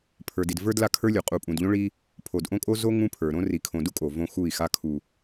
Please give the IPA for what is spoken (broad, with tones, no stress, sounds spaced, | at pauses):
pʰ ə˞˨ d i˨ d v ə˞˦ d l a˦ kʰ ə˞˦ lʲ u˨ qʼ u˨ pʼ ũ˨ d ʎ õ˦ ɭ i˦ | pʰ o˨ d ʔ õ˦ kʼ o˦ z o˦ ŋ ũ˦ pʰ ə˞˨ ɾ õ˦ r i˨ kʰ õ˨ d u˦ kʼ o˨ v õ˦ x u˦˨ i̯ x a˦ kʰ u˨